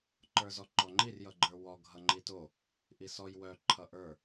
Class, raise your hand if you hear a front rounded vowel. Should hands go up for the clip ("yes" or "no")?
yes